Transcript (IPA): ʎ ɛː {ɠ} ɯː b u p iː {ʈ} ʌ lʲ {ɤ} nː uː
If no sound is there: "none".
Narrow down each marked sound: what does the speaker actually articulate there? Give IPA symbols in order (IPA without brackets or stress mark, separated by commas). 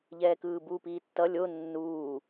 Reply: k, tː, o